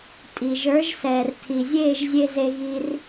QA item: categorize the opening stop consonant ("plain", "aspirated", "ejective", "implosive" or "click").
ejective